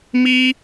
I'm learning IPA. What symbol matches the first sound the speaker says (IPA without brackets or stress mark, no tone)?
m